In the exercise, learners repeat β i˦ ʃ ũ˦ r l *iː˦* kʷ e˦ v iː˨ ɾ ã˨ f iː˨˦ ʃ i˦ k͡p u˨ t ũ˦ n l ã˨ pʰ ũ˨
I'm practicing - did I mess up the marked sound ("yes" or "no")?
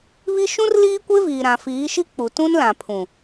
no